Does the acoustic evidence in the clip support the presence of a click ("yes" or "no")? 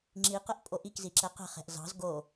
yes